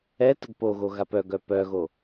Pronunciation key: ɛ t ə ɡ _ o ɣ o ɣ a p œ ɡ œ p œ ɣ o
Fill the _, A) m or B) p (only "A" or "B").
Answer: B